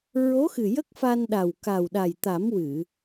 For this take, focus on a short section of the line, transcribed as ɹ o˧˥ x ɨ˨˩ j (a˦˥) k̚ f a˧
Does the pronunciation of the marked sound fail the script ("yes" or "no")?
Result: yes